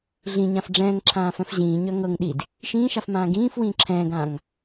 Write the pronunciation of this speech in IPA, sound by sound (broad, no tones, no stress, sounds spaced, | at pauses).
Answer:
ɮ ĩ ɲ ã f ɖ͡ʐ ɛ̃ː ŋ ǁʰ ãː f œ̃ f ʑ ĩː ɲ œ ŋ ɤ ŋ ɗ i d | ʃ ĩː ʃ a f m ãː ɡ ĩː f w ĩː ǁʰ ɛ̃ː ɡ ãː ŋ